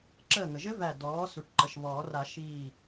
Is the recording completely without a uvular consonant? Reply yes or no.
yes